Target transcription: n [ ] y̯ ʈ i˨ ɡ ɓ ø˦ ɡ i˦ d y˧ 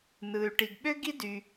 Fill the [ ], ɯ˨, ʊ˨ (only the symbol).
ɯ˨